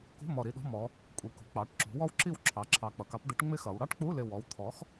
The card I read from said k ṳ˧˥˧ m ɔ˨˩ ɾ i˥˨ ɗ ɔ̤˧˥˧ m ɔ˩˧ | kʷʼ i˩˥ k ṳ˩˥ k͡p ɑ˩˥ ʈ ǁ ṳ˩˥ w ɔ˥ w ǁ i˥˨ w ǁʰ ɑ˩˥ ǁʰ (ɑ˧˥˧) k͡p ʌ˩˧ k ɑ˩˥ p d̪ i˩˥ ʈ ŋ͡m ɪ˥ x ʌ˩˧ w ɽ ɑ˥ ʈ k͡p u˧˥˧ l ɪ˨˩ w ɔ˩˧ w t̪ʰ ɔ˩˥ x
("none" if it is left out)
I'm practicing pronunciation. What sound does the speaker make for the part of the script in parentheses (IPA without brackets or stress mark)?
ɑ˨˩